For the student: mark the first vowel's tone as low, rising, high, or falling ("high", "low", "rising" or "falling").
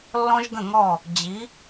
high